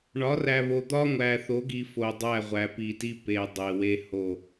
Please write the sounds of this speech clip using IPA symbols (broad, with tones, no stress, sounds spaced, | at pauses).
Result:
ɳ ɒ˨˦ r æ˨ β o˨ d̪ ɒ˦ ŋʷ æ˨ θ o˨˦ ɡ i˨ f o˨ dˤ æ˦˨ ʁʷ æ˨ p i˨ t i˦ p e˨ dˤ e˨ w e˦ h o˦˨